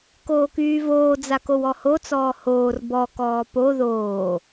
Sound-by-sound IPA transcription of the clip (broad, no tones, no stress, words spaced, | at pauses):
koːkyːvoː d͡zakowɔho t͡sɔːhoːr bɔ kɔːpo ðoː